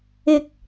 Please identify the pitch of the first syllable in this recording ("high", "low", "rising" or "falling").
low